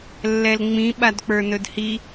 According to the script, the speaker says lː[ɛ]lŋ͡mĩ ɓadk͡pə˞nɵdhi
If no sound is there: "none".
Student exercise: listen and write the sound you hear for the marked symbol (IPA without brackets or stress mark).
ɛ